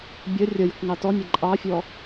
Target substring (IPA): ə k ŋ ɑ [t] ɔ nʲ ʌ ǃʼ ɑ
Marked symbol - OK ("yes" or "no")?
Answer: yes